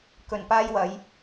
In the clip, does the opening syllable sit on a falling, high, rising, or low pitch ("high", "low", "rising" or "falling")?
low